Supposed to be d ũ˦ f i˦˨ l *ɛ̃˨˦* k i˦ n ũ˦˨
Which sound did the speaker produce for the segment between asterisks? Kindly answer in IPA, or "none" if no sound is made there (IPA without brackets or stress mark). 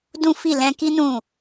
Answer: ɛ̃˧